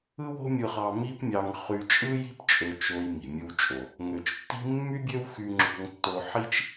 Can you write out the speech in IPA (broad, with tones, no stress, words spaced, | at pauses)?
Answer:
ɯ˥wo̤˥mʲɯ˧χɑ˧ mi˥pmʲɑ˧ŋ χy˧t͡ʃʼɯ˥ji̤˥p t͡ʃʼø˧t͡ʃo˧j mi̤˩mʲɯ˧wt͡ʃʼo˩ | ŋø˩t͡ʃtːi̤˥ mːy˥bʲø˥wxy˧ ŋ͡ǁo̤˧ŋtːo˧ ħi˥t͡ʃ